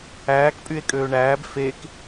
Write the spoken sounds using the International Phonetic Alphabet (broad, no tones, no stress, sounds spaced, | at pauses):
æː k pʼ y e̯ kʼ øː ɳ æː b f e k